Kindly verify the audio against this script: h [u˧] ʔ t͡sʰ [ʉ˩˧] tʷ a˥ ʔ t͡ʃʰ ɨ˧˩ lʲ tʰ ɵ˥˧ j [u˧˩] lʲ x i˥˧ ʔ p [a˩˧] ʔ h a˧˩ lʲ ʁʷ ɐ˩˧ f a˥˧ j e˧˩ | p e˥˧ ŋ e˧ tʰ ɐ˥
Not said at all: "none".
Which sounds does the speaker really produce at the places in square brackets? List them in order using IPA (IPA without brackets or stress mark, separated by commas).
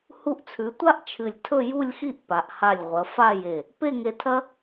u˧, ʉ˩˧, u˥˧, a˩˧